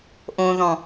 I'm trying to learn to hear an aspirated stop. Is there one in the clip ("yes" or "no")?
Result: no